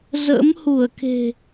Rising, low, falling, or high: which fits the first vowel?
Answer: rising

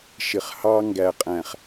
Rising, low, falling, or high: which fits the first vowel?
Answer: low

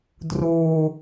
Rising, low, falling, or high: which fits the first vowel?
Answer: low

